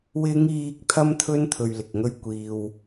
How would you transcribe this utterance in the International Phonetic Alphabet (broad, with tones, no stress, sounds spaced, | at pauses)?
w ɪ˨˧ ŋ iː˨ k̚ t̪ʰ ɐ˥ m t̪ʰ ɵ˥ n t̪ʰ ɵ˧ ɥ l ɪ˨ k̚ ŋ ɵ˥ ɥ kʷ iː˧ w